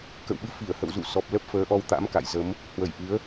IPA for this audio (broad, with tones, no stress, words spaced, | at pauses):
kə̰˧˨wɓɨ˨˦fi˧˩ə̯ hə̰˧˨wzṵ˧˨sɔ˨˩p̚ lə˦˥p̚fəː˨˦ʔɔ˧w t̪a̰˧˥mka̰˧˨jzə˨˦m | hwə˧˩jʔɨ˨˦ə̯